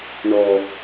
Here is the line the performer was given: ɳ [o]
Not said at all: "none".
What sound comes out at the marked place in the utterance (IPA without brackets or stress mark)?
ɔ